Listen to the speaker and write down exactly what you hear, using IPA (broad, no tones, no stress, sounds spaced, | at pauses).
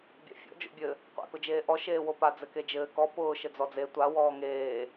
bʲ a̰ fʲ ɔ̰ d͡ʒ o̰ bʲ ɘ | qʷ a̰ k ʊ d͡ʒ eː ʔ ɔ ʃ eː w o p a d͡z ɘ k e d͡ʒ ɘː k ɔ p ʊː ʃ ɘ d͡z ɔ d͡z e tʷ a w ɔː ŋ eː